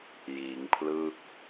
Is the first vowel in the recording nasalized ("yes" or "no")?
no